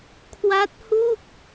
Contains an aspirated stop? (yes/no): yes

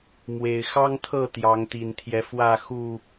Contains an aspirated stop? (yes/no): yes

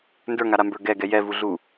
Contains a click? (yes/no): no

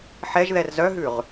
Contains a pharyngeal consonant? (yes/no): yes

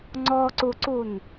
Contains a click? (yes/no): yes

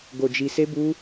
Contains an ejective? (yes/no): no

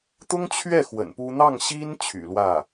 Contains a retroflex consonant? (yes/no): no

